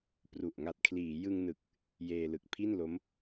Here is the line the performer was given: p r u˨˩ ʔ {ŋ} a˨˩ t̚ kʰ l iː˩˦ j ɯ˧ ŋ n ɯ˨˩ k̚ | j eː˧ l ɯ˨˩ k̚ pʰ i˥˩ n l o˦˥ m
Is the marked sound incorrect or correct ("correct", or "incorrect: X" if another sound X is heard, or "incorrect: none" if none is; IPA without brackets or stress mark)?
correct